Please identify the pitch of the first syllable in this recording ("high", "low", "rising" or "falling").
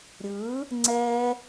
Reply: rising